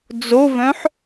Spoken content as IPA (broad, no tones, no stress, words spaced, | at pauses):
d͡zovœ̃ħ